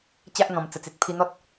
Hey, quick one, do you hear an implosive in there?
no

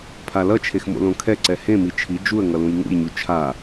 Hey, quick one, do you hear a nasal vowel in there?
yes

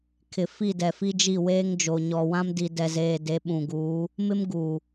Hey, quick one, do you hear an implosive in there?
yes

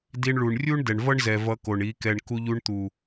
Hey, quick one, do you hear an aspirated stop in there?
no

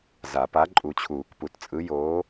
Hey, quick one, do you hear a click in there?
yes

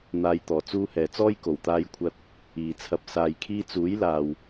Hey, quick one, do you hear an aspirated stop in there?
yes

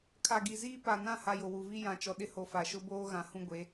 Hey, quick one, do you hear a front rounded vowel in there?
no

